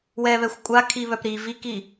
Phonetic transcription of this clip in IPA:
w ɛ β ɛ xʷ kʷʼ a kʰ i β œ p ɾ i v i k i

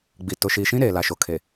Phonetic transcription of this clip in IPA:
ɡ͡b i˨ t ʊ˨ ʃ iː˨ ʃ ĩ˦ ɾ eː˨ l a˨ ʃ o˨ kʰ e˨

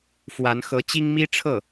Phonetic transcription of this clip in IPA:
f w a˧˥ n x ɤ˧˥ t͡ɕ i˥ ŋ m i˥ ʈ͡ʂʰ ɤ˥˩

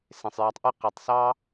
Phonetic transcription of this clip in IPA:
s ẽ˨ sˤ j æ˧ tˤ ʔ ɯ˦ q e˨ tˤ s ɑ˦

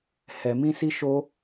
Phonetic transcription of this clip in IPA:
h ɛ˧ m ĩ˦ s i˦ ʃ o˦

